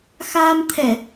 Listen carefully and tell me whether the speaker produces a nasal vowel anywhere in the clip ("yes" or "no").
no